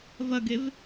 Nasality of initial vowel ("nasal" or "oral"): oral